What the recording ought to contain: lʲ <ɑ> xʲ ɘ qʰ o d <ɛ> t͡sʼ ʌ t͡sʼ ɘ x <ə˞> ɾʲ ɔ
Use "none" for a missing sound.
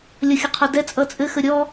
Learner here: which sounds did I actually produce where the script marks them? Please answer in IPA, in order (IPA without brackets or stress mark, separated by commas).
ʌ, ɛ, ə